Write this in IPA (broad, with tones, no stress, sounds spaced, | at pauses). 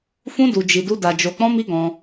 f ũ˦ d u˧ d͡ʒ i˧ d u˦ d a˧ d͡ʒ o˧ k͡p ɔ̃˦ m i˦ ɡ ɔ̃˧